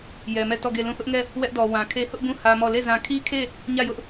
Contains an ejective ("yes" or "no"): no